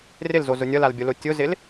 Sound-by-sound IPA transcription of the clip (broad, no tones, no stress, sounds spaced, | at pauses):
r ɪ l z o z ʊ nʲ ʌ l a l bʲ ʊ l o tʲ ʊ z ɪ l